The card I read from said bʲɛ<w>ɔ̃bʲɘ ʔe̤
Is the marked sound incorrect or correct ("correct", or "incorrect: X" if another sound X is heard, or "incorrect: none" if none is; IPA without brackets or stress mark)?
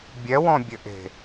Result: correct